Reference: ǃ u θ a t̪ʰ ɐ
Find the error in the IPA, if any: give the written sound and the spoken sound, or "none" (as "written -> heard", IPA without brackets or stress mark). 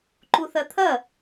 a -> ɐ